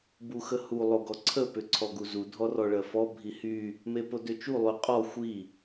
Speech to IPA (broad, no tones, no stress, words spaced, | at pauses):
buxəhu lˠoɡɔǀʰə pʏǀʰɔɡuzu dʱɔrɔɭɜfɔ bʱihy | mepodøt͡ʃu lˠyqʼɔ xʷi